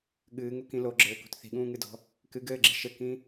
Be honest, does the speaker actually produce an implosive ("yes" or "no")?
yes